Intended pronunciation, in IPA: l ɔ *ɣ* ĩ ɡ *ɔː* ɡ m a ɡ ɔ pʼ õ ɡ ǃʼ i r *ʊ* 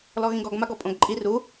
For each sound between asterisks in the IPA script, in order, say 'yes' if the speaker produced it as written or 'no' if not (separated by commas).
yes, no, no